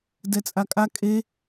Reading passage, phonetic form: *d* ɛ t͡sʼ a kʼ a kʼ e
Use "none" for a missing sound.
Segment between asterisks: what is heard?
d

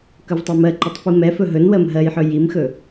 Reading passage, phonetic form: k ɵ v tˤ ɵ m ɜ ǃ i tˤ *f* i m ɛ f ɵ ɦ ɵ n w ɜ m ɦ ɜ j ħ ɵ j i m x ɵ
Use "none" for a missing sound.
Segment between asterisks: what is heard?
f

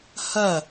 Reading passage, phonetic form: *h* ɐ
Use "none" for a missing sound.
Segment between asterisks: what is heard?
h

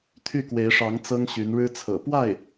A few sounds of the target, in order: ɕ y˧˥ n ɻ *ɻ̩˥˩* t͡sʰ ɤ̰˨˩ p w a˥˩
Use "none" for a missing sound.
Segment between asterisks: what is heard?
ɻ̩˥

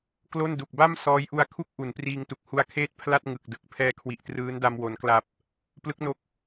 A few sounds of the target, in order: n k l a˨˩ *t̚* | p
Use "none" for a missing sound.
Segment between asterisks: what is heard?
p̚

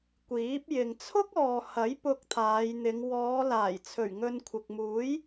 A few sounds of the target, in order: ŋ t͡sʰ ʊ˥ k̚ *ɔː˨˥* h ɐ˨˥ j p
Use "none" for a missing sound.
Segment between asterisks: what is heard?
ɔː˨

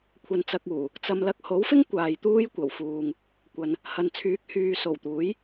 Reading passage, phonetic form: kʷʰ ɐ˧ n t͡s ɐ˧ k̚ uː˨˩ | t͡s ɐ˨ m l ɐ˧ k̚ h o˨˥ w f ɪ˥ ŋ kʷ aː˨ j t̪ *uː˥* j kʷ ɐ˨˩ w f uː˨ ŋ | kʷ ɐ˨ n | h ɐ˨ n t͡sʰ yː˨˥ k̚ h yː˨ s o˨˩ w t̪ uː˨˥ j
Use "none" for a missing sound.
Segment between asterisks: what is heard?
uː˥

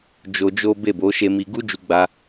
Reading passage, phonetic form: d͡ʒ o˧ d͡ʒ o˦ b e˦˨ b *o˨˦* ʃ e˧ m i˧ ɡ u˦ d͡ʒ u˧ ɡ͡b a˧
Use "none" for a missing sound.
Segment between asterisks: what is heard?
o˨˦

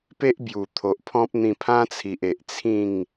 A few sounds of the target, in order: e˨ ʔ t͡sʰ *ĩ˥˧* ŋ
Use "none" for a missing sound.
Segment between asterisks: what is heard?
ĩ˥˧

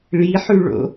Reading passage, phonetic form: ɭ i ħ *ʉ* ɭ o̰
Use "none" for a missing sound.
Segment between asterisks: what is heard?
ʉ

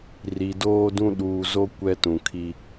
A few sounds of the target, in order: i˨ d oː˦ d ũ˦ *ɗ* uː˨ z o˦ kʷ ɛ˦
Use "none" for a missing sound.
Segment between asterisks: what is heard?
ɗ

